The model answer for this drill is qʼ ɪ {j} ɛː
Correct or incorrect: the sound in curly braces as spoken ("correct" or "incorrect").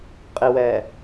incorrect